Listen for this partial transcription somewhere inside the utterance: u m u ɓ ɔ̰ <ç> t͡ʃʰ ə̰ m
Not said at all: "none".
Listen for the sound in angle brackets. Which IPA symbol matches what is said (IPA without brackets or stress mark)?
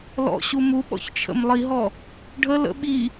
ç